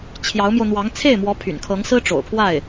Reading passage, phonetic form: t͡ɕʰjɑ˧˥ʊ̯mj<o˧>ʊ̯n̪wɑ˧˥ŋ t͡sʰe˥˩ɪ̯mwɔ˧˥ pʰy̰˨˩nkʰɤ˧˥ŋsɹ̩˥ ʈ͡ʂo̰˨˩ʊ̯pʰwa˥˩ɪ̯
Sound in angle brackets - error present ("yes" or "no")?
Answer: no